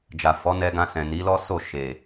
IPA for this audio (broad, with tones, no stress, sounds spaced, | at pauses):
d͡ʒ a˨ f ɔ˨˦ n ɛ˧ ɡ ã˧ s ɛ̃˨ n i˨˦ l ɔ˦ s o˦˨ ʃ e˨